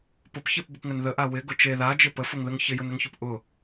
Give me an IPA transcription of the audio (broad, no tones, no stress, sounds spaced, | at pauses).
p ʊ p ç e p b ɪ p ŋ ə n ð ə ʔ a w ɪ ɡ ʊ t͡ʃ e ð a d͡ʒ ɪ p ə f ʊ ŋ ð ə ŋ ç ɪ j ʊ n ə ŋ ç ʊ p ʔ ʊ